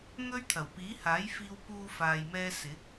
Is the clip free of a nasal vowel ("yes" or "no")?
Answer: yes